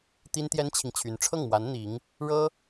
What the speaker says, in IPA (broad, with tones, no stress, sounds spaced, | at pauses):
t̪ i˥ n t̪ j ɛ˥ n t͡ɕʰ i˨ ŋ t͡ɕʰ y˧˥ n ʈ͡ʂʰ ɤ˥˩ ŋ m w a˧˥ n n̪ i˧˥ ŋ | ɻ ɤ˥